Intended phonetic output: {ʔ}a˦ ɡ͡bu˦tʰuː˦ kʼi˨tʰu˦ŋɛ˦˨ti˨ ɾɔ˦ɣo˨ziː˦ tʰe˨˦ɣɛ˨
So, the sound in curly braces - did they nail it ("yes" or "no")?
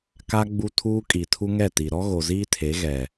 no